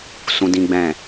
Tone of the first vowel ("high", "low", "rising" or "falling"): high